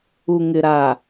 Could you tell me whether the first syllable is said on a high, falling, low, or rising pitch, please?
low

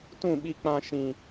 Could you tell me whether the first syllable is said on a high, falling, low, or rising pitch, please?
falling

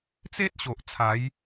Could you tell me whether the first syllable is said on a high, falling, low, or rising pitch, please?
high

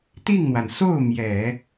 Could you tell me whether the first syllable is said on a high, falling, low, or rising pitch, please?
falling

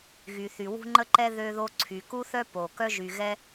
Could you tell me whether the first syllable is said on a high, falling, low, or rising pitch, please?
low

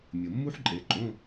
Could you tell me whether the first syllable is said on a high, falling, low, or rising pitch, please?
low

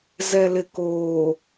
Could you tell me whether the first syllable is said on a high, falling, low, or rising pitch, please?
low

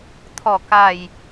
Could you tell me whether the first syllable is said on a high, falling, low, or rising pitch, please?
low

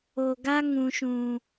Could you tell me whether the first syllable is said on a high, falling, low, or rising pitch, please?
low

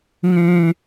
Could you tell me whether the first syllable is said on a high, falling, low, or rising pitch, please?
high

